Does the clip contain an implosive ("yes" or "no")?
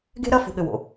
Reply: yes